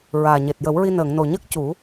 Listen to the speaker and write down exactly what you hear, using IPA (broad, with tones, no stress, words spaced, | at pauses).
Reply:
ɹaː˨˩ɲe˨˩t̚jə˨˩˦wɹi˧ nəː˨˩˨ŋno˨˩ ɲəː˦˥k̚ cu˨˩˦